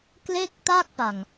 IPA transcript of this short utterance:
k l e˥˩ k̚ t a˥˩ k̚ p a˨˩ ŋ

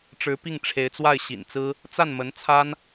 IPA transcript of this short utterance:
ʈ͡ʂ ɻ̩˧˥ p i˥˩ ŋ ʈ͡ʂʰ e˧˥ ɪ̯ t͡s w a˥˩ ɪ̯ ɕ ḭ˨˩ n t͡s ɹ̩˥ | t͡s a˥˩ n m ə˧˥ n t͡sʰ a˥ n

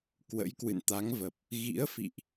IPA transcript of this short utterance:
k w ə̰˧˥ j k w ɨ̰˧˨ n t̪ a˨˦ ŋ v ə˨˩ p̚ | ɣ ḭ˧˥ ə̯ f ḭ˧˨ ʔ

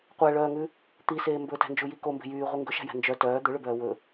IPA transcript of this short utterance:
qʷ æ ɭ œː ŋ ʉ | t̪ i s eː m b ɵ t æ̤ n d͡ʒ u j i k o m b e̤ j yː ʁʷ i ŋ ɡ ɵ ʃ æ̤ j æ̤ n d͡ʒ œ t œː d̪ ɵ ɭ ɵ b œː w ɵ

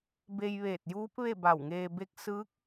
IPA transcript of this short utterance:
b e˧ j ʋ eː˧˩ t̚ j uː˧˥ p̚ ʋ e˥˨ b a˧˩ w ŋ eː˧ b e˧˥ k̚ s ɯː˧˥ k̚

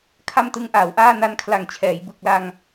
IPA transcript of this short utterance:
kʰ a˥˩ m t ɯ˦˥ ŋ ʔ aː˩˦ w ʔ aː˥˩ n a˦˥ n kʰ l a˨˩ ŋ t͡ɕʰ ɛː˩˦ j b ɯ˨˩ k̚ l a˧ ŋ

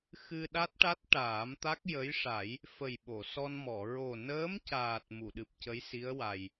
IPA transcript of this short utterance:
x ɨ˧ ɗ a˦˥ t̚ ʈ a˦˥ t̚ ʈ aː˨˩˦ m t̪ a˦˥ k̚ j ə˧˥ j ʂ a˨˩˦ j | f ə˨˩ j ɓ o˨˩˨ s ɔ˧ n m ɔ˨˩˨ ɹ o˨˩ n əː˧˥ m c aː˨˩ t̚ m u˨˩˨ ɗ ɨ˨˩ p̚ c ə˧˥ j s i˧˥ ə̯ w a˨˩ j

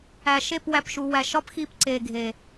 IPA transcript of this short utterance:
æ˨ ʃ e˦˨ p w æ˨ p ʃ u˨ w æ˨ ʃ ɒ˦ p x i˧ p ǀ e˨ ɡʱ e˨

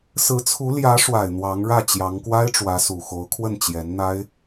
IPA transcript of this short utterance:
s ɹ̩˧˥ t͡sʰ u˧˥ l j ä˧˥ ʂ w a˨˩ ɪ̯ n̪ w ɑ˧˥ ŋ ɻ ä˥˩ t͡ɕ j ɑ˧˥ ŋ k w a˥ ɪ̯ ʈ͡ʂ w ä˧˥ s u˨˩ x o˧˥ ʊ̯ kʰ w ə˥˩ n t͡ɕ j ɛ˧˥ n n̪ a˥ ɪ̯

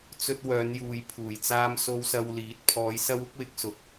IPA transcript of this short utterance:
t͡s ɵ˧ t̚ w œː˨˧ n j uː˨ j pʰ uː˨˩ j t͡s aː˧ m s o˧ w s ɐ˧ w l iː˨˥ t̚ pʰ ɔː˨˧ j s ɐ˧ w ʊ˨˥ k̚ w ɪ˨˥ k̚ s ʊ˨ k̚

